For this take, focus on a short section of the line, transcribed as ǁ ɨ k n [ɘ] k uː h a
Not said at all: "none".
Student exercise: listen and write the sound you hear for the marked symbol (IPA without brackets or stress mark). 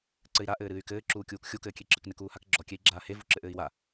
ɘ